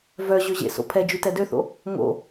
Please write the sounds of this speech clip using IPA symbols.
vœ ʑøʑḛso̰ pʰɛd͡ʒy tɛdøθo̰ | ŋo̰

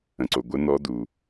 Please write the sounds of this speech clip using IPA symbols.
ə̃˩ǀo˩ ɡʷə˧˥nɔ˧˥du˩

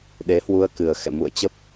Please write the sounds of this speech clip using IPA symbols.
ɗe˨˦hwu˧ə̯ kɨ˨˩ə̯xɛ̰˧˨ mṵ˧˨ə̯t͡ɕə˦˥p̚

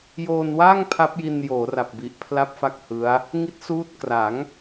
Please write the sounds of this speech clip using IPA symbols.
joː˧nwaː˥˩ŋ pʰa˦˥p̚ji˧njoː˩˦ ra˨˩p̚bi˨˩ʔ pʰla˥˩p̚fa˥˩k̚hɯ˦˥a̯ | ŋi˦˥t̚suː˦˥t̚ kra˩˦ŋ

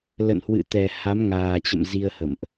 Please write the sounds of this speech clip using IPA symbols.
lə̰˧˨nhwɨ̰˧˨t̪ɛ˨˩ ha˨˦mŋaː˨˩t͡ɕə̰˧˨m zi˧ə̯hə̰˧˨mʔ

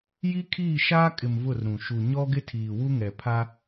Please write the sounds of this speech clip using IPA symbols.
ji˦kʰiː˦˨ʃaː˦kʼɪ˨m vʊ˦˨rɾũ˨ ʃu˨ ɲɔ˦ɡɪ˦ tʰiː˨wu˦ŋɛ˨ pʰa˦

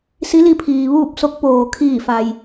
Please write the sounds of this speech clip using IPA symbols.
si˧˥li˧pʰiː˩ ʋuː˥˨p̚so˧˥k̚poː˩ kʰiː˧˩fa˩j

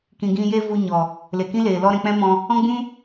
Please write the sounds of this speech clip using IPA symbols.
kĩ˨ ɡĩ˧je˦ vu˧ɲɔ˨ | le˨kĩ˦leː˨ lɔ˦ɾɛ̃˧ k͡pɛ̃˦mɔ̃˧ | ɔ̃˦ɡ͡bũ˦

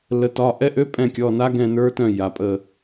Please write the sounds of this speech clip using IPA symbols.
lə˩˧tɒ˩˧˩ ʔɛ˧˥ʔø˧˥˧ pʼɛ̃˦˨kʲɔ˩˧˩na˧˥ ɡɛ̃˦˨ nə˞˧˥tœ̃˦˨ ja˩˧pʼə˦˨

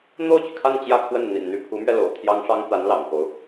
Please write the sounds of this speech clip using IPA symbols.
n̪o˥˩ʊ̯t͡ɕy˩kʰa˥˧n t͡ɕjä˥˧kʰwə˥˩n n̪ḭ˨˩nn̪y˥˩pʰu˧˥mɥɛ˧ lo̰˨˩ʊ̯t̪ʰjɑ˥ŋʂɑ˥ŋ t̪a˧˥nlɑ̰˨˩ŋko˦ʊ̯

